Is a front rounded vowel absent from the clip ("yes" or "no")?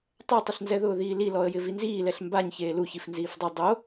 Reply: yes